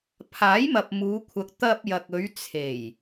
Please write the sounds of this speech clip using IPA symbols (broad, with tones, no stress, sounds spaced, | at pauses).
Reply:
pʰ aː˨˥ j m ɐ˨ p̚ m uː˨˧ kʷʰ ɐ˨˥ k̚ t̪ ɐ˧ p̚ j ɐ˨ k̚ ɵ˨˧ ɥ t͡sʰ e˨˩ j